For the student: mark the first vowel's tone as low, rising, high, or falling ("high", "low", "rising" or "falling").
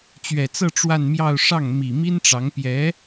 low